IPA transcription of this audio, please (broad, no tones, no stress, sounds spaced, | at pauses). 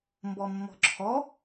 m b ɔ mː ɔ̤ ǁʰ ɔ